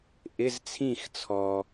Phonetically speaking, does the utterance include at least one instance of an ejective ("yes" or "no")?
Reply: no